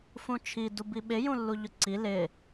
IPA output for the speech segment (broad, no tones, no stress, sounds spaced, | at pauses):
f ũ t͡ʃʰ i d u b i ɓ ɪ j ũ lː u ʎ ʊ ǀ i l ɪ